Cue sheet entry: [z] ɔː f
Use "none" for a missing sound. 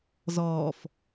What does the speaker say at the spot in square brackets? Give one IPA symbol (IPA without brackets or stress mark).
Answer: z